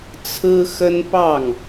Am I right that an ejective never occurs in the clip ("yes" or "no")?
yes